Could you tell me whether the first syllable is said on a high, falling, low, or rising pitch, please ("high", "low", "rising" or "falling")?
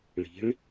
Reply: rising